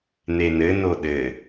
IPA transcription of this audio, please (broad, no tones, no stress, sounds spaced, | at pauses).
n̪ e n ɘ n o ɗ ɘ